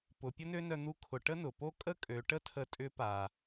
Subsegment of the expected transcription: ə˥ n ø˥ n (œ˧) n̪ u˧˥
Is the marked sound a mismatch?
no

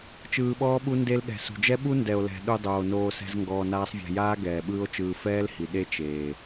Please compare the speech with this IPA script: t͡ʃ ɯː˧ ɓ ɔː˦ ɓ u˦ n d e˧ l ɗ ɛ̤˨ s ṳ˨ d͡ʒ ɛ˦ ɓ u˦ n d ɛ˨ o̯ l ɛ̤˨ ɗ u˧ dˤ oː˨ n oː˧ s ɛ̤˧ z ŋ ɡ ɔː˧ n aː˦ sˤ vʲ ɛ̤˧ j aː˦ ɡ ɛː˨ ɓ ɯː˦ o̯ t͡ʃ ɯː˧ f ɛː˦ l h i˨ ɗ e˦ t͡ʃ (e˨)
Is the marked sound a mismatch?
yes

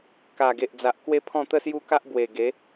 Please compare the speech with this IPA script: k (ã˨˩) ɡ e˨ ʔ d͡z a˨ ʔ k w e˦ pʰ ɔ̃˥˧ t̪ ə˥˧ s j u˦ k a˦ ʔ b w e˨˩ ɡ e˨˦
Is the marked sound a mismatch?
yes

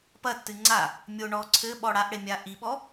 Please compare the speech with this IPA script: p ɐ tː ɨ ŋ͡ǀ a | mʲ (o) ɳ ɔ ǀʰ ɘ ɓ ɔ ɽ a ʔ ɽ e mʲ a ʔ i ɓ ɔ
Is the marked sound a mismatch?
no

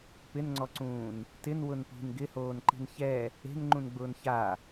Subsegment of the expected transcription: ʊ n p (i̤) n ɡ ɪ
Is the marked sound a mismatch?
no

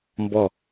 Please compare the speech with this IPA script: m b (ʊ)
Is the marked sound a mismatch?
yes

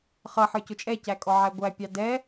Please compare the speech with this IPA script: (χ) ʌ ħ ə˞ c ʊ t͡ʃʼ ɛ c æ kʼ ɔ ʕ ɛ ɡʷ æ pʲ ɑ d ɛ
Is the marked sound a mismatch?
no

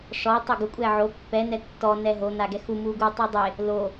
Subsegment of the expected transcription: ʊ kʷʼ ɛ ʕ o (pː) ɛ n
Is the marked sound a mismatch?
no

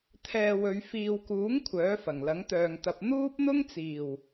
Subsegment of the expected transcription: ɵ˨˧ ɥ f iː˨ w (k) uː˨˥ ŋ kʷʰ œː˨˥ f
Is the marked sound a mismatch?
no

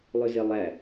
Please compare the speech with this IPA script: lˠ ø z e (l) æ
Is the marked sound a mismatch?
yes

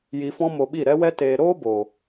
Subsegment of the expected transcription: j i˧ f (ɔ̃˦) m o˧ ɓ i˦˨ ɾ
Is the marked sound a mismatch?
no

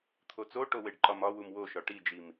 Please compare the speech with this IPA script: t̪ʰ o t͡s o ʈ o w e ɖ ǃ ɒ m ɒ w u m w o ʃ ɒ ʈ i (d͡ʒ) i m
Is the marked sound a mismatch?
no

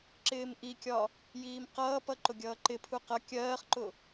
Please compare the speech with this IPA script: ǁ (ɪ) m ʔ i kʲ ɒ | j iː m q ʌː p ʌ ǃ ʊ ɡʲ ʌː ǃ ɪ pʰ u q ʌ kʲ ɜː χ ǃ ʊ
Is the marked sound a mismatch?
yes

